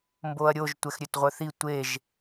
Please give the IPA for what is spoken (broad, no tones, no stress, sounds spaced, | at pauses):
m b o ɐ̯ ɾʲ o ʒ tʷ ɛ x ɾʲ ø t ʁʷ œ θ i tʷ e ʒ